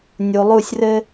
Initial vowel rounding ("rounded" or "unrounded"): rounded